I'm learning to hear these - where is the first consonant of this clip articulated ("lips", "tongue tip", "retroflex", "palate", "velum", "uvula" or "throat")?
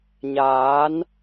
palate